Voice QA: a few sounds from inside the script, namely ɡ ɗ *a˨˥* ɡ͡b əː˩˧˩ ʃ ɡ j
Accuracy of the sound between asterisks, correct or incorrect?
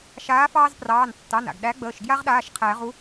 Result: incorrect: æ˨˥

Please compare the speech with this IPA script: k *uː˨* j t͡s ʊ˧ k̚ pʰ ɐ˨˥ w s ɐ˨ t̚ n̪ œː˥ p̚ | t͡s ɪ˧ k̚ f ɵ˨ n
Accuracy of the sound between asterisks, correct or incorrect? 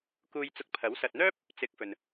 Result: incorrect: uː˧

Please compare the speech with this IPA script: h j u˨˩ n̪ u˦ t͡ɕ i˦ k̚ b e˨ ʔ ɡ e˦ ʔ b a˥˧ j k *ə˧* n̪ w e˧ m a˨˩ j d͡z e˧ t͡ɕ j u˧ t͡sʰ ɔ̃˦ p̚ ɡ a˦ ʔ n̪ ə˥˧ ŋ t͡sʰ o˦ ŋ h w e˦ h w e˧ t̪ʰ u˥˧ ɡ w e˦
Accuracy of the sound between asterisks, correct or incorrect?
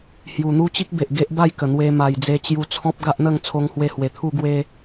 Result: incorrect: ə˨˩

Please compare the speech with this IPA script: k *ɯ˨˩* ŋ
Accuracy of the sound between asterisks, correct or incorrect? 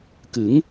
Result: incorrect: ɯ˩˦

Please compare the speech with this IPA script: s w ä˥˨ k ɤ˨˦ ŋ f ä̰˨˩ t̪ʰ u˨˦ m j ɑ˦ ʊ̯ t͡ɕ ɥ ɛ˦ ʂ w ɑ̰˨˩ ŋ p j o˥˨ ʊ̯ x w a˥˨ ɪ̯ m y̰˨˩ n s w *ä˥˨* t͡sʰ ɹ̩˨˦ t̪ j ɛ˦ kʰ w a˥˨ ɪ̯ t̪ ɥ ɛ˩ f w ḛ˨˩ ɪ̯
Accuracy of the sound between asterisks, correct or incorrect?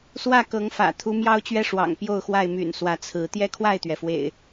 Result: incorrect: ä˨˦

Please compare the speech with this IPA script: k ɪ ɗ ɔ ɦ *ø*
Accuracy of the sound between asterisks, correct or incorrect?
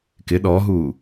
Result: incorrect: u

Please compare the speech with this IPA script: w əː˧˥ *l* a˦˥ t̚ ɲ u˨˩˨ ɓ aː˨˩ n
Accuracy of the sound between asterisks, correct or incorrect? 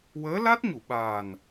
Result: correct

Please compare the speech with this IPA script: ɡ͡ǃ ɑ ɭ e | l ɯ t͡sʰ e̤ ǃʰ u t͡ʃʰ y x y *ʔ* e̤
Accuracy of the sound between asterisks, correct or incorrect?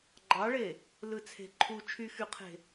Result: incorrect: qʰ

